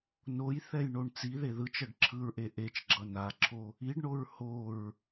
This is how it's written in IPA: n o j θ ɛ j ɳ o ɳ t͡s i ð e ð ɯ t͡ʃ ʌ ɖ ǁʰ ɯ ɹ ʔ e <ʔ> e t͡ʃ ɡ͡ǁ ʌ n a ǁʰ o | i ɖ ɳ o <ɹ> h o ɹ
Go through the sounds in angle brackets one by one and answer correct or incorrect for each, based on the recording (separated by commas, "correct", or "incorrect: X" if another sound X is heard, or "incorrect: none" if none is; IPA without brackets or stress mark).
correct, correct